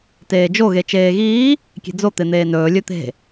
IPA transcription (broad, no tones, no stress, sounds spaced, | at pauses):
t eː d͡ʒ o ɣ e t͡ʃ eː ɣ iː | kʲ e̤ d͡z o t̪ e n̪ eː n ɵː lʲ ɵ t̪ e̤